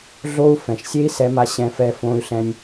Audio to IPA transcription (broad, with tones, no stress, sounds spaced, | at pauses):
ɮ o˧ u̯ f ɛ̃˩ ʃ sʲ e˥ i̯ s ɛ˧ m a˧ ɕ ɛ̃˧ f ɛ˧ f õ˧ y̯ ɬ ɛ̃˧ nʲ